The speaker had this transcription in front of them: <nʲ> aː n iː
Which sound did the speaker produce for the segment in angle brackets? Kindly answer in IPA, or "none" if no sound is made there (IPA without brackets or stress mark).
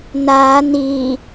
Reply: n